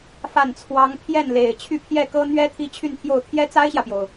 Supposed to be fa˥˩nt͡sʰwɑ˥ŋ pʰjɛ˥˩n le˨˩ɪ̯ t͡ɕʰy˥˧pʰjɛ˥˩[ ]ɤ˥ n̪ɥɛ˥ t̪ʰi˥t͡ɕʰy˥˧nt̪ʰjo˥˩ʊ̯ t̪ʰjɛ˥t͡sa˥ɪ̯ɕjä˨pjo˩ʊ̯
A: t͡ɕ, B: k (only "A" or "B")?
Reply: B